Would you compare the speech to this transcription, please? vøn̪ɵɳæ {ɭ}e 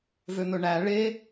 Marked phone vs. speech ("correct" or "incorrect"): correct